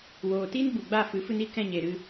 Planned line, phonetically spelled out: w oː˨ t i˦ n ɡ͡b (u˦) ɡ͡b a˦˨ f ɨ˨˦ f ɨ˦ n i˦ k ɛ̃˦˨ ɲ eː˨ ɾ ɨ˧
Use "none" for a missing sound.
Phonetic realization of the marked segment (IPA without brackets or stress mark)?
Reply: u˨